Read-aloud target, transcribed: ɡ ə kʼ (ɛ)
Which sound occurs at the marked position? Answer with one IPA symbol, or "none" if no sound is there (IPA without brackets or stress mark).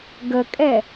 ɛ